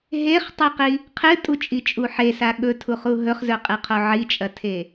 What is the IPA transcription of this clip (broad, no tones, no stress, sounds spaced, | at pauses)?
ɦ e χ tˤ i q i | qʰ ɨ tʼ u t͡ʃʼ i t͡ʃʼ u ħ e s a ɠ ɵ tʰ u χ u ɦ ɵ χ z ɵ qʼ ɨ qʰ o ʕ i t͡ʃʼ ɐ tʰ e